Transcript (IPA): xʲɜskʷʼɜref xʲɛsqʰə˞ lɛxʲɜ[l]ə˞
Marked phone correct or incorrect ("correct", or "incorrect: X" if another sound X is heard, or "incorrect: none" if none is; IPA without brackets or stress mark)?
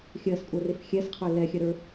incorrect: ɾ